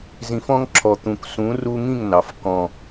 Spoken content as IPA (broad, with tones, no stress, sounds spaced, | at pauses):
z ĩ˨ f ɔ̃˦ ŋ ǁʰ ɔ˨ t̪ ũ˨ k s ũ˨˦ r u˧ ŋ ĩ˦˨ ŋ n ɑ˨ f k ɔ̃˨